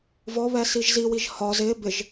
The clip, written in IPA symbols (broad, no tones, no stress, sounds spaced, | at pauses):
v ɔ β ɛ s i ʒ z i w i ʒ h ɒ z ɪ b ɪ ʒ